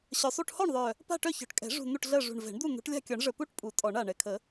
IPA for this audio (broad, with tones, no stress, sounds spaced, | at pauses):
ɕ œ˨˩ sˤ u˥˨ ʈ h ɔ˥˨ ɳ ðˤ œ˨˩ | p a̤˥˨ ʈ œ˥˨ ç ɔ̤˨˩ ʈ kʼ ɛ̤˨˩˦ ʐ ṳ˨˩ n̪ u˥˨ ʈ ɮ ɜ˥˨ ʐ ṳ˨˩ ɳ v ɛ̤˨˩˦ ɳ d̪ u˥˨ n̪ ṳ˨˩˦ ʈ lʲ a̤˥˨ kʲ ɔ˨˩˦ ɳ ʐ ə˨˩ p u˥˨ ʈ pʼ u˨˩˦ tʼ ɔ˨˩˦ ɳ a˨˩ ɳ ɛ˨˩ kʰ ə˨˩˦